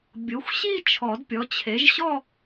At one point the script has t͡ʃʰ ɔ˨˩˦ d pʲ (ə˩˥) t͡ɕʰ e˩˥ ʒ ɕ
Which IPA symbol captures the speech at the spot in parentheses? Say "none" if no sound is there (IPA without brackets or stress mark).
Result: ɔ˩˥